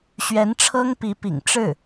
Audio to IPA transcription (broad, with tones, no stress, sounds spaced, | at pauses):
ɕ ɥ ɛ˧˥ n ʈ͡ʂʰ ɤ˥ ŋ p i˧˥ p ḭ˨˩ ŋ ʈ͡ʂ ɻ̩˥˩